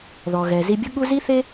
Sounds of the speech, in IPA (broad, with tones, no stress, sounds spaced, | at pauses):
ð ɔ˩ ɣ ɛ˩ z i˧ bʲ ʊ˥ ɠ u˥ z i˥ θ e˥